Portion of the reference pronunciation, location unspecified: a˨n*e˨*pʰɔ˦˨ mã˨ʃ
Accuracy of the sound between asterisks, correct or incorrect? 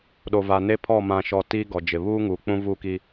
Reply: incorrect